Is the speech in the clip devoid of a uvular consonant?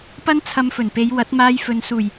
yes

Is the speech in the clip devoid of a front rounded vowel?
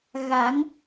yes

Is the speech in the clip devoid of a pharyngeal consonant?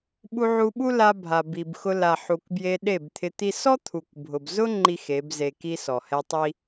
no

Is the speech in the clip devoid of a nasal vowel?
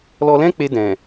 no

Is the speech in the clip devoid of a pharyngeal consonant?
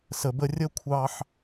no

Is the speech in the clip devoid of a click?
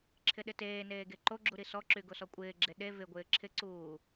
no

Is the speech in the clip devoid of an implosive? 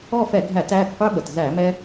no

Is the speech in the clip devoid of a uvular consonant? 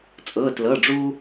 yes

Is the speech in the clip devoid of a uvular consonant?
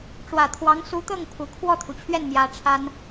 yes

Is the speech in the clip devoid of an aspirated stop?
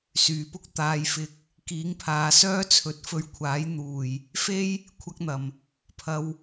no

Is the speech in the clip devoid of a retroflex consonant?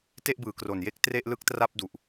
yes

